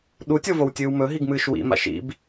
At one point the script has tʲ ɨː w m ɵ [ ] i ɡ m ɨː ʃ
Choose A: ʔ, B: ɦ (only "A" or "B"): B